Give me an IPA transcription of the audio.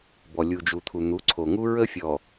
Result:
bɔ˨ lʲu˨d͡ʒu˨t̪ʰu˨ n̪u˨˦ǀʰo˨ŋu˦ ɹə˦fʲɔ˨

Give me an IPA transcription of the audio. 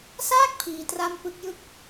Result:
saː˥˩k̚ pʰiː˧tra˥˩m pɯ˦˥k̚jɯ˥˩k̚

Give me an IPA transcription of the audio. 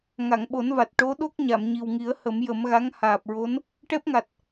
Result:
ŋa˨˩˨ŋɓo˨˩˦nva˨˩t̚ ʈo˧˥ɗo˦˥k̚ ɲa˨˩˨mɲi˨˩wŋi˨˩˦ə̯ hə˨˩˦mjə˨˩˦mɣa˧˥ŋ haː˨˩p̚ɹo˧˥n | ʈɛ˦˥p̚ŋa˨˩t̚

